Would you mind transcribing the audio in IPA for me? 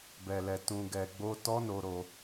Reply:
b ɛ˨ l ɛ˨ t ũ˨ ɡ ɛ˨ ɡ͡b o˧ t ɔ˦ n o˧ ɾ o˧

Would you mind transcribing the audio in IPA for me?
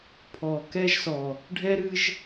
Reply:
pʰ ɔ˧ k ɛ˥ ʒ s ɔ˧ | ɖʱ ɛ˥ ɾ ɨ˥ ʒ

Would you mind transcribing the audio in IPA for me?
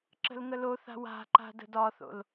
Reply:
ǁ ə̤ l ŋ ə l o θ a̤ w a̤ ǃ a̤ d ə̤ d ɒ θ o̰ l

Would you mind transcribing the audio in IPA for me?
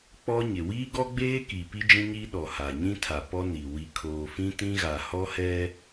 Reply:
k͡p ɔ˦ ɲ ɪ˨ w iː˦ ɡ ɔ˦ ɡ͡b eː˦ k i˨ p i˦ d͡ʒ ĩ˦ ɲ i˦ ɗ ɔ˨ h a˨ ɲ ĩ˦ tʰ a˨ p ɔ˦ n i˨ w i˨ kʰ oː˨ f ĩ˦ t ĩ˦ ɣ a˨ h ɔ˦ h ɛ˦

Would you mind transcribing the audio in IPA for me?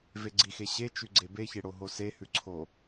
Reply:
v e ɡ͡ǀ i x e ɕ e t͡ʃ ʉ ɡ͡ǀ e b e ç e ɽ o ɦ o s e h ʉ ǀʰ o

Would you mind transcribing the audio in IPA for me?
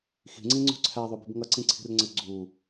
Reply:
x i̤ ŋ͡ǀ ĩ ŋ͡ǀ ṳ ǀʰ æ ðˤ u b i̤ b ŋ ʌ ǀ ĩ ǀʰ i̤ r ŋ͡ǀ ə ɡ͡ǀ u

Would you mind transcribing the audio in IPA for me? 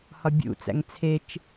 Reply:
h ɒ bʲ ṵ t͡s æ̰ ŋ t͡sʰ e t͡ʃ

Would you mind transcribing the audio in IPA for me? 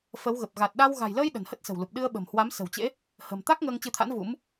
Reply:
f ə˨˦ w ɣ ə˨˩ p̚ ɣ a˨˩ t̚ ɗ a˧ w ɣ a̤˨˩ j l əː˧ j ɗ ə̤˨˩ n h ə˦˥ t̚ s ə̤˨˩ w l u˨˩ p̚ ɗ ɨ˧ ə̯ ɓ ə̤˨˩ m h w a˨˦ m s ə̤˨˩ w t͡ɕ ḛ˧˥ | h ə̤˨˩ m t̪ a˦˥ k̚ ŋ əː˧ ŋ t͡ɕ ɨ˧ t̪ʰ a̰˧˥ n v ṵ˧˥ m

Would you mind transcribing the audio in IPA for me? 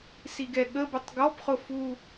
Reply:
s i ɡ ɛ ɠ ə b ʊ tˤ ɡ ɔ p χ ʊ f u

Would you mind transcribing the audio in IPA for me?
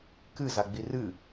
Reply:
k ɨ z a ɡ͡b i r ɨ

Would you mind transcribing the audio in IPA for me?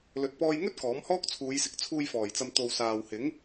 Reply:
l ɵ˨ t̚ p ɔː˧ j ŋ ɵ˥ t̚ k ɔː˨˥ m h ɔː˥ k̚ t͡sʰ uː˨˧ j s ɪ˨˥ k̚ t͡sʰ uː˧ j f ɔː˨˩ j t͡s ɐ˨ m t̪ o˨ w s aː˨ w h ɪ˨˥ ŋ

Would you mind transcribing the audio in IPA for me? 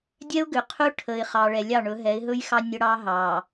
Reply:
dʲ ɛ˦ ʊ̯ ɡ ʏ˨ qʰ ɵ˦ ʈʰ ə˨ ɪ̯ χ ɑ˨ ɭ ɛ˨ lʲ ɑ˦˨ ɳ ɵ˨˦ ɦ ɛ˨˦ ɪ̯ ɦ ɵ˦ j x ɑ˦ nʲ ə˦ ɽ ɑ˦ ɦ ɑ˨

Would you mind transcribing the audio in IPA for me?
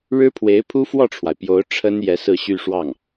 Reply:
ɻ ɻ̩˥ pʰ w e˧˥ ɪ̯ pʰ u˥ f w ɔ˥˩ ʈ͡ʂʰ w a˩ ɪ̯ p j o˧˥ ʊ̯ ʈ͡ʂʰ ə˥ n j ɛ˧˥ s ɹ̩˥˧ ɕ y˥˧ ʂ w ɑ˥˩ ŋ

